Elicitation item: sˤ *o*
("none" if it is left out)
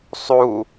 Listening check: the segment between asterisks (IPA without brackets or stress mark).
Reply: u